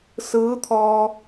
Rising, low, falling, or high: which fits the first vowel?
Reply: rising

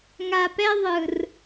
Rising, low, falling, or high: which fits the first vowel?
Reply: low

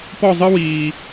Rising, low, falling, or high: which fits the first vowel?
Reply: falling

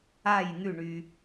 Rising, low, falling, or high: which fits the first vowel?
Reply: falling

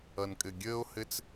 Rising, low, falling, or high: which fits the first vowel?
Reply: low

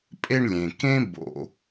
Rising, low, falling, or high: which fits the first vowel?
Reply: high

